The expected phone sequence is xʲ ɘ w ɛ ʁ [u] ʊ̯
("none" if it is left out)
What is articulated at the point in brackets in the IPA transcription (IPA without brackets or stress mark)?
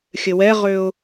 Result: ø